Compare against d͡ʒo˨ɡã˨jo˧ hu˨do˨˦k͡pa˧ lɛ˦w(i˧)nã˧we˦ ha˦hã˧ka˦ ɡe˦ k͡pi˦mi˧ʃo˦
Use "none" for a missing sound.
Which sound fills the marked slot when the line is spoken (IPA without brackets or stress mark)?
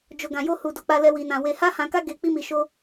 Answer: i˧